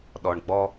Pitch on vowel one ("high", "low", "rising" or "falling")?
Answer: low